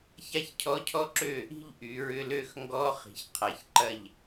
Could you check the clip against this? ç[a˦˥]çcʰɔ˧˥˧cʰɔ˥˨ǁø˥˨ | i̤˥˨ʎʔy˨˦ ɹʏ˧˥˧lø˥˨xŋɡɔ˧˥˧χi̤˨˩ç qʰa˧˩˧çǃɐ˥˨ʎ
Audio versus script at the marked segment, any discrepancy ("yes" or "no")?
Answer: no